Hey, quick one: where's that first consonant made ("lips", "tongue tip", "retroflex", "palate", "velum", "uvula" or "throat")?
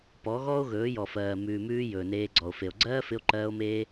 lips